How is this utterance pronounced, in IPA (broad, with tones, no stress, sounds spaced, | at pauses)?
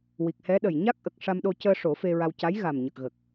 w i˨˩ k̚ h ɛ˧˥ ɗ ə˨˩ j ɲ a˦˥ k̚ ʔ ə˨˩ k̚ ʂ a˧ m ɗ o˧ c əː˧ ʂ o˨˩˦ f e˧ ɹ a˧ w c a˧˥ j ɣ a˨˩ m ɲ ə˨˩ k̚ ɣ ə˨˩ k̚